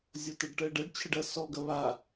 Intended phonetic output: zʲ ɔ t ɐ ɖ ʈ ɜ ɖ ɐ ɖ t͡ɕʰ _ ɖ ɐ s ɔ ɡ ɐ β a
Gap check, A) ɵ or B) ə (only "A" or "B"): B